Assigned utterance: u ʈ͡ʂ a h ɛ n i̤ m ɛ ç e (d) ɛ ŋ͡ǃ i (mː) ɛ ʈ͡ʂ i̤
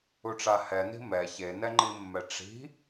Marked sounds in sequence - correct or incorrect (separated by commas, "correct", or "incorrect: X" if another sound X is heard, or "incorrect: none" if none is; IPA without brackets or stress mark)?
incorrect: n, correct